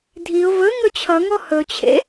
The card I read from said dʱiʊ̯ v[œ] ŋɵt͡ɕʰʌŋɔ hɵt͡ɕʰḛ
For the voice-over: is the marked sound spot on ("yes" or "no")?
no